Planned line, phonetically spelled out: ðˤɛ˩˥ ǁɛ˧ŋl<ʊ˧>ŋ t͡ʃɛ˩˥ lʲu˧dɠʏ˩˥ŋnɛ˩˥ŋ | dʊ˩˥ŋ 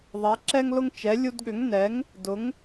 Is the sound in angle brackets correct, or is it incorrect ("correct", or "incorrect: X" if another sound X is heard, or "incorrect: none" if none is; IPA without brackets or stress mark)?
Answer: correct